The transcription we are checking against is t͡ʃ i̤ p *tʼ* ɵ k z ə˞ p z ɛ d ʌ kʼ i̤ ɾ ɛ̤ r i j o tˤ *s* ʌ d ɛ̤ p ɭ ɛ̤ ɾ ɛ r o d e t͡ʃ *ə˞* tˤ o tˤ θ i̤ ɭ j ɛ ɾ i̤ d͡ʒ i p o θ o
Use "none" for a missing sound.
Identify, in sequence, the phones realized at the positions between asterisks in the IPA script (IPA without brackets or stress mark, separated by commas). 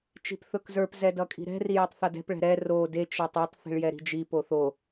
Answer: θ, θ, ʌ